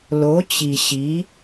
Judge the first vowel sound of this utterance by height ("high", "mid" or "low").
mid